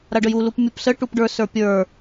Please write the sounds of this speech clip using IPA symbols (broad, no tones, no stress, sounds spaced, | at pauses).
ɾ a ɖ ə j u l u p mʲ u p s ə ʈ u p ɖ ə˞ s ə˞ pʲ ə˞